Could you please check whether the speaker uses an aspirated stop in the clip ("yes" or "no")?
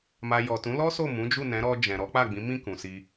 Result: no